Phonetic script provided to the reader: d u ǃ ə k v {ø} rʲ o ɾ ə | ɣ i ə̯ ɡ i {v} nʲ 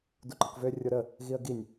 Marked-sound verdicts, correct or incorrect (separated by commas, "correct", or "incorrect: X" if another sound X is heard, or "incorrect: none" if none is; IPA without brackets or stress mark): correct, incorrect: none